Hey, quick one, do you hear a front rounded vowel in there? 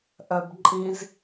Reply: yes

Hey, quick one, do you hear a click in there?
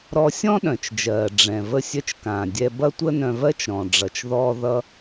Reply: no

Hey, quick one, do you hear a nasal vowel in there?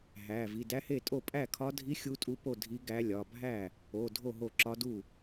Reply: no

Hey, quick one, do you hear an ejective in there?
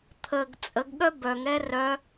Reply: yes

